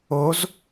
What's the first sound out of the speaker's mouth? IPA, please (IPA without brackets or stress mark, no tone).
o